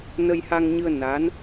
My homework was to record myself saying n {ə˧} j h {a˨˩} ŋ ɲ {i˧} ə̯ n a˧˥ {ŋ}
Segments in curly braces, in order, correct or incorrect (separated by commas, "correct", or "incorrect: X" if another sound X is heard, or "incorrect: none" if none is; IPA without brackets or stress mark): correct, incorrect: a˧, incorrect: ɨ˧, incorrect: n